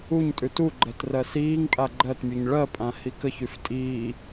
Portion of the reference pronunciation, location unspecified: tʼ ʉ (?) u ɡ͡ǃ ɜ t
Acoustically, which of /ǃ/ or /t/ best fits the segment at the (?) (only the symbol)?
t